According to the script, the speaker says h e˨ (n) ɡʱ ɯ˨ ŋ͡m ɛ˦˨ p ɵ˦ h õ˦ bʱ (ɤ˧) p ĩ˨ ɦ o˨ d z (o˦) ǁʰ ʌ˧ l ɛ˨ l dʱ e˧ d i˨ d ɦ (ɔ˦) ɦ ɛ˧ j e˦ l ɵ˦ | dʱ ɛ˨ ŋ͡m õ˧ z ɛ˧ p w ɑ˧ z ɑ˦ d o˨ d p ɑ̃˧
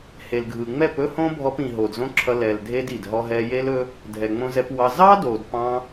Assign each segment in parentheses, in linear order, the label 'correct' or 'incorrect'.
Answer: incorrect: l, incorrect: ɔ˧, incorrect: õ˦, correct

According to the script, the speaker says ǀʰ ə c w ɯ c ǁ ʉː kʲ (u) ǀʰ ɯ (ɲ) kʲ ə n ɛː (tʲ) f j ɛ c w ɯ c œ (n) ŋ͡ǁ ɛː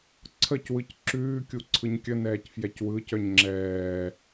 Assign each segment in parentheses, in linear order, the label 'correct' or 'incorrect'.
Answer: correct, correct, incorrect: c, incorrect: ɲ

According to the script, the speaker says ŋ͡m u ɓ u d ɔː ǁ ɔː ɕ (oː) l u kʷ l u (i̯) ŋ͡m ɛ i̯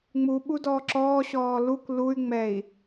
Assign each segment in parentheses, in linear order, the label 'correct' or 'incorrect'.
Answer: incorrect: ɔː, incorrect: y̯

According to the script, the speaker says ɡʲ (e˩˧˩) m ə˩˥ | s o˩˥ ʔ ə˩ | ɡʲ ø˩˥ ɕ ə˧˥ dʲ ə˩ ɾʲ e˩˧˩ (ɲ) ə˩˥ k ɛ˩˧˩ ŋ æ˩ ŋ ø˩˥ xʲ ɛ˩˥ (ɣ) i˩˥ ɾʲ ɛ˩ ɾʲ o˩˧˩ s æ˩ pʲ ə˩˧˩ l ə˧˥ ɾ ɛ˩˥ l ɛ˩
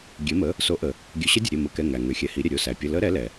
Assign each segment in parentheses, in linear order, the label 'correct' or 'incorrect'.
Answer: incorrect: e˩˥, incorrect: m, incorrect: h

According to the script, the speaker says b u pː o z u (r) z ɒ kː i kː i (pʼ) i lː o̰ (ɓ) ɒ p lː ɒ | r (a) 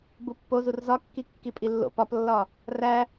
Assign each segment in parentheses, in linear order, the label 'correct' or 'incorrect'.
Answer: correct, correct, incorrect: p, incorrect: æ

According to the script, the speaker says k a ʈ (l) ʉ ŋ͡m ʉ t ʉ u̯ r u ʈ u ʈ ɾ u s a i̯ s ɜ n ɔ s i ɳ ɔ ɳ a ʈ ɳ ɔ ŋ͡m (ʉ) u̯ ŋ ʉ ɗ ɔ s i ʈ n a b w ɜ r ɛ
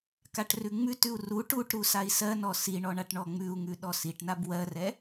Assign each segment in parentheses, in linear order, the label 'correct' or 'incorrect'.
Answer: incorrect: r, correct

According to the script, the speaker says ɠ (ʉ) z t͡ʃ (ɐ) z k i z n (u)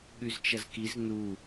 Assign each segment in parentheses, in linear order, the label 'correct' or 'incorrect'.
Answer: correct, correct, correct

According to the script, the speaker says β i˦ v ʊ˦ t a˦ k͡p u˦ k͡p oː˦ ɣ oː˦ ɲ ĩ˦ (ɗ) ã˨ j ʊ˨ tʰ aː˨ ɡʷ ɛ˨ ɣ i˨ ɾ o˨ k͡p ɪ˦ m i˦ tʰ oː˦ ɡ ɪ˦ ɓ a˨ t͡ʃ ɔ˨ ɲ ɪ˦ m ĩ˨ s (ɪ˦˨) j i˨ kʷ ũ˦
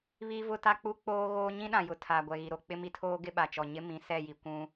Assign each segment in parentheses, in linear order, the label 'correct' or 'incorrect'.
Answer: correct, incorrect: ɛ˦˨

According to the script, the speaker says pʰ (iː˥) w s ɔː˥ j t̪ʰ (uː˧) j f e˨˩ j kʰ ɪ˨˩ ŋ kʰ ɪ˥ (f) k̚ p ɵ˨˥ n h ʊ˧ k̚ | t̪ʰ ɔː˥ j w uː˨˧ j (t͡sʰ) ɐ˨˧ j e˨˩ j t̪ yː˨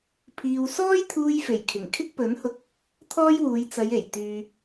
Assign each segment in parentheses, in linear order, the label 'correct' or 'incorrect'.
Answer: incorrect: iː˧, correct, incorrect: none, incorrect: t͡s

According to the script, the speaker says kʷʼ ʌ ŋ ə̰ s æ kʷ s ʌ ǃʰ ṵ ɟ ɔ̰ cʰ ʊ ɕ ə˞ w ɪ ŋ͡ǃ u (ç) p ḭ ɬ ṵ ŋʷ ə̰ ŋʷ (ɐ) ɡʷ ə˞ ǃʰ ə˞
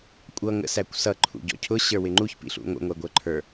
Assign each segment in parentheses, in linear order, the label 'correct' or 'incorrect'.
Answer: correct, incorrect: æ

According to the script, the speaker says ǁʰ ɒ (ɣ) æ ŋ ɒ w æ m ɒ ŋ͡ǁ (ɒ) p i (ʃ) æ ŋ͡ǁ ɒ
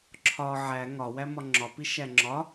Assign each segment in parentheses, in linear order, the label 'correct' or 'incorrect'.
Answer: incorrect: ʕ, correct, correct

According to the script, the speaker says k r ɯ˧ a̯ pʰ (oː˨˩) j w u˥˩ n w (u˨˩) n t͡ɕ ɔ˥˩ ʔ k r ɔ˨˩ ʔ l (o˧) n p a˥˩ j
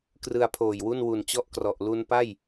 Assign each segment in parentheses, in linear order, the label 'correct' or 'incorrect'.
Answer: correct, correct, incorrect: u˧

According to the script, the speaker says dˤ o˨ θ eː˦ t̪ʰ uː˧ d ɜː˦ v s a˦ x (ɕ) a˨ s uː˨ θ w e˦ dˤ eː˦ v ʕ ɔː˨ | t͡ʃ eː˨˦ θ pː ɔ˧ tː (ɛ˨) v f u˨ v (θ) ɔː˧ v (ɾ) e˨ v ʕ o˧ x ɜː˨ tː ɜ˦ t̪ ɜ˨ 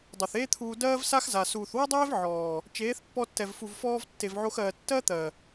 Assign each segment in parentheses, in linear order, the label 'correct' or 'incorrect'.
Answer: incorrect: z, correct, incorrect: f, incorrect: tː

